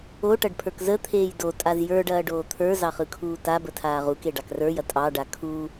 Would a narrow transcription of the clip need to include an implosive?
no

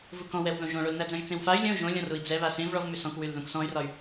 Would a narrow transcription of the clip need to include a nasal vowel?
yes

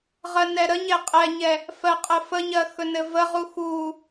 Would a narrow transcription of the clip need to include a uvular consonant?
yes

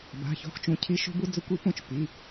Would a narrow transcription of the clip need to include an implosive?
no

